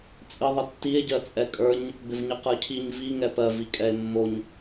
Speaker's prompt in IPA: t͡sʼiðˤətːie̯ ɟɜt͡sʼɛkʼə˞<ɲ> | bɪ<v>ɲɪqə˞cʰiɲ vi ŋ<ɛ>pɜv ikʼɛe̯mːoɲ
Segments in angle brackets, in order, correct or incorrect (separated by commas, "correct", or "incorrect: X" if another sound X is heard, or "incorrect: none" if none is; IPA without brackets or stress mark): correct, correct, correct